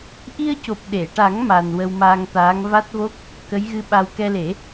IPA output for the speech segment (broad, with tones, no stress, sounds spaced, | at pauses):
ʔ i˧ ə̯ c o˨˩ p̚ ɗ e˨˩˨ ʈ a˨˩˦ ŋ m a˧ n w ə˧ w m aː˧ ŋ t̪ aː˧˥ ŋ v a˦˥ t̚ v o˦˥ k̚ | k ə˧˥ j ɣ ɨ˧ ɓ a˧ w k ɛ˧ l e˨˩˦